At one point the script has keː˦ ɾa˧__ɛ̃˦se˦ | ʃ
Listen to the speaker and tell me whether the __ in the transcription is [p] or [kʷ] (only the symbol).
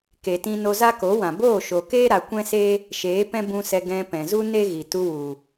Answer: kʷ